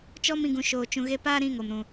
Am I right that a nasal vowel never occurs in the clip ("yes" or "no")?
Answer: no